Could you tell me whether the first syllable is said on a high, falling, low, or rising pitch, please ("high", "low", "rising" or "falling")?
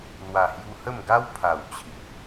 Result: low